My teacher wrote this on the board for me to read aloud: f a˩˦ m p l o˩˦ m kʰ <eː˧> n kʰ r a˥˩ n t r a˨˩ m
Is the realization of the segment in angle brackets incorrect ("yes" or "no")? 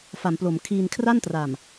yes